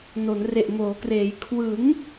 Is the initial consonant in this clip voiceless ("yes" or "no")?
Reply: no